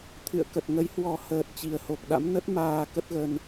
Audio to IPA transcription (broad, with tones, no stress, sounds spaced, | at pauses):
t̪ʰ ɨ̰˧˨ ə̯ k ə˨˩ t̚ ŋ ə˨˦ j h w ɔ˨˩ h əː˨˩ t̚ t͡ɕ i˨˩ ə̯ h o˨˩ k̚ ɗ a̰˧˥ m n ə˦˥ t̚ m aː˧ k ə˦˥ t̚ ɣ ə˧ n